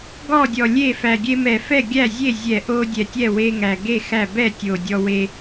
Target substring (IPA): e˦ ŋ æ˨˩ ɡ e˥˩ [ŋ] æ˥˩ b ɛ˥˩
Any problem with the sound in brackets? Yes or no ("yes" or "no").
yes